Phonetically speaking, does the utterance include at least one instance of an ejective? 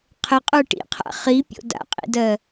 yes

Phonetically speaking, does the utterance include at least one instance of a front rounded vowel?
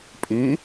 yes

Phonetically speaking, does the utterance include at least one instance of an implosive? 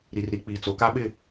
yes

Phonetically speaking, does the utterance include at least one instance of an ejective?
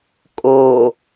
yes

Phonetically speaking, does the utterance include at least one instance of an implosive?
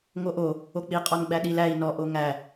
yes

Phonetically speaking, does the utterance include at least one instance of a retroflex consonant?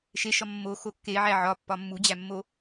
no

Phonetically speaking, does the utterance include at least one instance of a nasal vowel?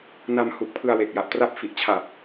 no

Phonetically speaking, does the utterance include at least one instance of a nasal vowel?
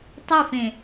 yes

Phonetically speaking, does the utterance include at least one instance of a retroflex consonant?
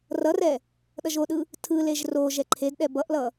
no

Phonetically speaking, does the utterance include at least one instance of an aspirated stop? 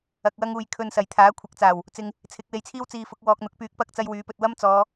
yes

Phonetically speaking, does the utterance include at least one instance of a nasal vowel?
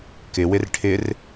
no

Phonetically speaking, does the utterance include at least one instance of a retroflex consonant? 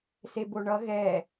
yes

